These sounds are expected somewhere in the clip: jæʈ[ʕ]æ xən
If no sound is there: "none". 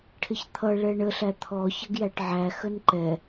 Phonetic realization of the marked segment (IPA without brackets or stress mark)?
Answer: ʕ